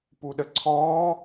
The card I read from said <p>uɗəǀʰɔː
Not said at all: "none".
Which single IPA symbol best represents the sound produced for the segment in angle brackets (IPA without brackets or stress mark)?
p